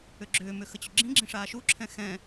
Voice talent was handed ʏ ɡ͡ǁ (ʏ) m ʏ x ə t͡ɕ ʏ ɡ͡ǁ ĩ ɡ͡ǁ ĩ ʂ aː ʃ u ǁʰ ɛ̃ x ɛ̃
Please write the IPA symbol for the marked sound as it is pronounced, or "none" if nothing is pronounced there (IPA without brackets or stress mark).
ʏː